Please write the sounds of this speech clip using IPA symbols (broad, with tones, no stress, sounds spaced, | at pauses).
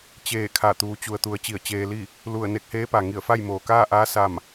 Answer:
t͡ɕ eː˧˩ kʰ a˧˩ t̪ uː˩˧ t͡ɕ u˩ ə̯ t̪ u˩˧ ə̯ t͡ɕ i˧˩ ə̯ t͡ɕ eː˧ l i˥˨ | l u˧˩ ə̯ n e˧ k̚ h eː˧˥ p a˩ ŋ i˧˩ ə̯ f a˥˨ j m oː˩ k aː˥˨ ʔ aː˧˥ s a˥˨ m